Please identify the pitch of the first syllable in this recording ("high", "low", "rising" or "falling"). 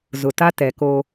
low